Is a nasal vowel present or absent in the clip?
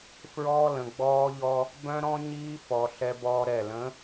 present